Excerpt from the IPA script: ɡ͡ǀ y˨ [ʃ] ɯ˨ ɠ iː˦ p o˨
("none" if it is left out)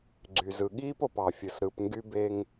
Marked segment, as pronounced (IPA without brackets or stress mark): z